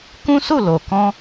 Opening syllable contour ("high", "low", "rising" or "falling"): high